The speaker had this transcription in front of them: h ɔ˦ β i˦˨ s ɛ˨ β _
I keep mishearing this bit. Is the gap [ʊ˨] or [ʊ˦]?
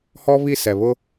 ʊ˦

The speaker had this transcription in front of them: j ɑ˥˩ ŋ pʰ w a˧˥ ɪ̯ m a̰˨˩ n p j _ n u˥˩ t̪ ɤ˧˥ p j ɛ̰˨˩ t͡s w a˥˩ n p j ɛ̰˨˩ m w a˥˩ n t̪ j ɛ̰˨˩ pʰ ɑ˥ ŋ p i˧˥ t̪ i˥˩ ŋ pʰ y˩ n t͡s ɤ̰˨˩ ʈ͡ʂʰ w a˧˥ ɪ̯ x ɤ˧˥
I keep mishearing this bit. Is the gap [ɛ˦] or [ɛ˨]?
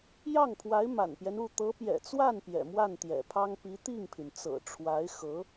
ɛ˦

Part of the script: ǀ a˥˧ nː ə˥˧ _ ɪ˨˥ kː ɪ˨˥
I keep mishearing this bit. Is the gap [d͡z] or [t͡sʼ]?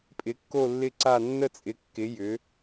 t͡sʼ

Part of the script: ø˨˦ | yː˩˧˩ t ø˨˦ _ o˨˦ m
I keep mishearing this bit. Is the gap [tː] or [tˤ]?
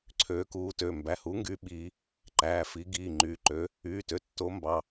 tː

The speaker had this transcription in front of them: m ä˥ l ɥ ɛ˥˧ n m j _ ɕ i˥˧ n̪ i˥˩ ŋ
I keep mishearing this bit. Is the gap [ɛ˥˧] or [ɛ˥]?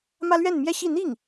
ɛ˥˧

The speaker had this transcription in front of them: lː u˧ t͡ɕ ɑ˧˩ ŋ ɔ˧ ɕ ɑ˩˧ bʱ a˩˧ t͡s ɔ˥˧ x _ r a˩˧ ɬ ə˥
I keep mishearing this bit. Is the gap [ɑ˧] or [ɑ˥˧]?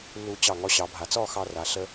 ɑ˧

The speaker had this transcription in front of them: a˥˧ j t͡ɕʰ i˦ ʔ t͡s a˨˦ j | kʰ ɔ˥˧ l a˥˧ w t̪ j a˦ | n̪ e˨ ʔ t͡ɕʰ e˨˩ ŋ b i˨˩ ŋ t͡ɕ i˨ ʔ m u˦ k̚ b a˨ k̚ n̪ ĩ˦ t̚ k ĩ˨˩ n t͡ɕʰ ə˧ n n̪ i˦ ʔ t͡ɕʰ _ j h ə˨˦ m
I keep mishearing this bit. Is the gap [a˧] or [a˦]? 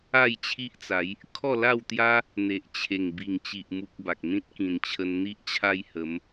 a˦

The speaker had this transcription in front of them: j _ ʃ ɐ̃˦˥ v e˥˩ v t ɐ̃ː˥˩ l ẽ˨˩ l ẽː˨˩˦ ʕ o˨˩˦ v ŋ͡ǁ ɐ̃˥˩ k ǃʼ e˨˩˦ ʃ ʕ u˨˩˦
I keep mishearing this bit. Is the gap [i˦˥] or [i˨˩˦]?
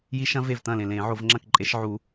i˦˥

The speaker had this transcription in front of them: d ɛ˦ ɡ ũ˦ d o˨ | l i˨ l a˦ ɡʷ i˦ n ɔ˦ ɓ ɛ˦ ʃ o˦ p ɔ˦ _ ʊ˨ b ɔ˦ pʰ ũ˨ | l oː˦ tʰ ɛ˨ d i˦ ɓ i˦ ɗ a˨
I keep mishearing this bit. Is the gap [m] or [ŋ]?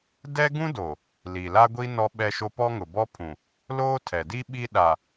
ŋ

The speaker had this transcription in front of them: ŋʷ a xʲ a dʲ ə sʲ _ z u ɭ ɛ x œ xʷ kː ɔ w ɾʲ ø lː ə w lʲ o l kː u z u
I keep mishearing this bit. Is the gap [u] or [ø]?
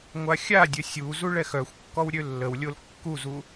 u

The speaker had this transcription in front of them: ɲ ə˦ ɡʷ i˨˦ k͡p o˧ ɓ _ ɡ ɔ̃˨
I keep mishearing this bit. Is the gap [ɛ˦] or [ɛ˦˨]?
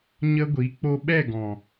ɛ˦˨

